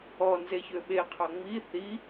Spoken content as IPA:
ɔ n z e ç ø ɓ e qʰ ɑ ŋ͡m i θ i

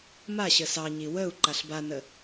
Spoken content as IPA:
m a ɕ ə s ɑ ɲ i w ə u̯ ǃ a ɬ b a n ə

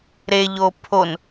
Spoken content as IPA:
ɾ e ʎ o pʰ o n

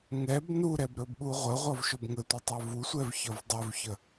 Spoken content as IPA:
ŋ ɛ b n u ɾ ɛ b ɾ ɵ b ɓ u ʁʷ ə ʁʷ ʌ v ʃ ɵ b ŋ ə tʷ ə tˤ ɛ v u sʷ ɛ v ç ʌ v dˤ ɵ v ç ə

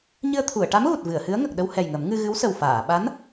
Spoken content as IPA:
ɲ ɨ˧ ə̯ t̪ʰ u˨˩˨ ə̯ ʈ a˧˥ m ɣ u˨˩ t̚ v ɨ˨˩˨ ə̯ h ɨ˧˥ ə̯ ŋ ə˨˩ k̚ ɗ ə˧ w h ɛ˨˩ j ŋ ə˨˩˦ m ŋ ɨ˧ ɣ ɨ˧˥ w s ə˨˩ w f aː˨˩˨ ɓ a˧˥ n

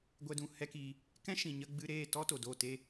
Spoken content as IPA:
ɡʷ ɛ˧ d ũ˨ h ɛ˦ k i˧ | k ɛ̃˦ ʃ ĩ˨ ɲ ə˧ ɡ͡b ɨ˧ ɾ eː˦˨ t ɔ˦ t o˨ d o˦˨ t e˦

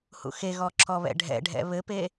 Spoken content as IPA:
h ṵ x e ɣ ɔ ǁ ɔ β ɛ̰ ɖʱ ɛ̰ ɖʱ ɛ̰ β ɘ p e

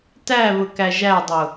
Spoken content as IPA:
t æ β ʊ k æ ʒ æ dˤ ʊ

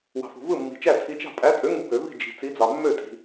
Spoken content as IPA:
w ɑ̤˨ f ṳ˨ v ɯ˥˩ mː i̤˨ t͡ʃ æ˥˩ tʰ i˨˥ t͡ʃ ɑ̤˥˩ pʼ æ˨˥ tʼ ø˨˥ ŋ u˨˥ b ø˨˩˦ v i̤˥˩ d͡ʒ i̤˨ t͡s i˨˥ d͡z ɑ˨ mː ø˥˩ tʼ i̤˨

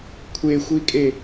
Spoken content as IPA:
kʷʰ e xʷ i kʼ e

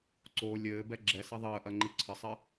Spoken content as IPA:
ǀ o lʲ ɘː b ɛ ɡ͡ǁ ɛ s ɐ ðˤ əː ʔ ɐ ŋ͡ǃ i ǀʰ ə sˤ ɘ

